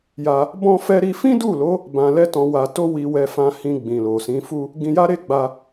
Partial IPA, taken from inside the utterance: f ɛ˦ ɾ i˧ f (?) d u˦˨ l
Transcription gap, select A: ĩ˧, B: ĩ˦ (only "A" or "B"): B